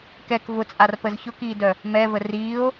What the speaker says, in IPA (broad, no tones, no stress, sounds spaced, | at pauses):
k ɛ k v ʊ t͡sʼ a r p ə z ç ʊ k iː d œ | m ɛ v ə r iː o̯